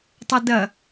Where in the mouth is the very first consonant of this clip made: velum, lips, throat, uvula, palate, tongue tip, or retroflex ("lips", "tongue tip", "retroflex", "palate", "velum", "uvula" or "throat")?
tongue tip